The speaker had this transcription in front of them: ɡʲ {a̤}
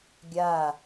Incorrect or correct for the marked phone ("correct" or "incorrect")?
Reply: incorrect